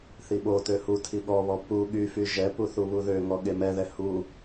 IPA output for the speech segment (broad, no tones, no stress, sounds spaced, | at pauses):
θ i ɓ o t ø h u tʰ i ɠ ɔ β ɔ p u ɠ y f y ʒ ɛ p u θ u β u ð ø ŋ ɔ ɠ e m ɛ ð ɛ h u